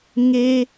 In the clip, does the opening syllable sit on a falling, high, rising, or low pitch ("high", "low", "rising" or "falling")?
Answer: high